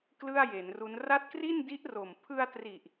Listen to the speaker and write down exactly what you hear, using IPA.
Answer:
k l ɯ˥˩ a̯ j e˩˦ n r u˦˥ n r a˦˥ t̚ k r i˥˩ n d i˦˥ ʔ r o˨˩ m pʰ ɯ˧ a̯ t r i˨˩ ʔ

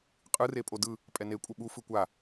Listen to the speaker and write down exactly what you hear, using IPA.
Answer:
qʼ ɯ r e pʼ o d ɯ | pʼ ɛ n e kʷʼ ʌ ɓ u f ɯ kʷ a

